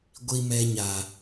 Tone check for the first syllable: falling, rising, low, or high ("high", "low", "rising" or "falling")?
low